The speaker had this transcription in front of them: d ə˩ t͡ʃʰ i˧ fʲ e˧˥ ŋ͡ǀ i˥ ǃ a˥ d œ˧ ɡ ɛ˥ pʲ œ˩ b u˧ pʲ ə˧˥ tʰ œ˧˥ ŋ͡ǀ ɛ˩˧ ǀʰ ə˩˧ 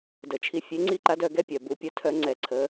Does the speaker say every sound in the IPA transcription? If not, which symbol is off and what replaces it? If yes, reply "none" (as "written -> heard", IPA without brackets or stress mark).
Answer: a˥ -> a˧˥